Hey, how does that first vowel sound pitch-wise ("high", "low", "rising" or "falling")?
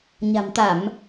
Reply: low